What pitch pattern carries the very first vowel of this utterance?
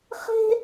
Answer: high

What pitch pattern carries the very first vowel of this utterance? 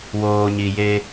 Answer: low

